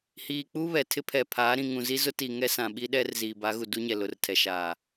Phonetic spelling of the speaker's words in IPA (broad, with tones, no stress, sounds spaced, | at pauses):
h iː˨ k͡p u˦ β ɛ˨ tʰ ɪ˦ pʰ ɛ˨ pʰ aː˨˦ ɾ ĩ˨ ŋ ũ˨ z i˦ z ʊ˦ t i˨ ŋ ɛ˦ s ã˨ ɓ i˦ ɗ ɛ˦ r z iː˨ b a˨˦ ɣ u˨ d u˦ ɲ ɛ˨ l ʊ˨ r tʰ ɛ˨ ʃ aː˨